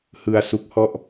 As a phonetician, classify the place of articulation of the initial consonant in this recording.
glottal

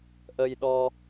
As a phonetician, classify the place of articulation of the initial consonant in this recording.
glottal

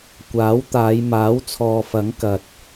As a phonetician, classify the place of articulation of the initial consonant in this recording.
velar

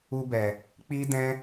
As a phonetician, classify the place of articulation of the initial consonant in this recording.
labial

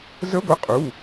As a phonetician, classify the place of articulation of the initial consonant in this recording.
alveolar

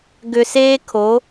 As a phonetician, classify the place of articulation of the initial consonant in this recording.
velar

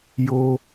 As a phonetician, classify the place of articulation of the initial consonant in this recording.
palatal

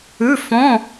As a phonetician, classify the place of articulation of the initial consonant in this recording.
labial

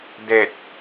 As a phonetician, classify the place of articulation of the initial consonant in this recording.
alveolar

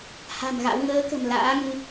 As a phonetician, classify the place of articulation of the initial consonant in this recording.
glottal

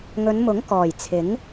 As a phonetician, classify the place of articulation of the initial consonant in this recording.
velar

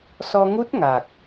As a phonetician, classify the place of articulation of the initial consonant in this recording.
alveolar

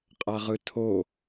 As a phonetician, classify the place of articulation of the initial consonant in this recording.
uvular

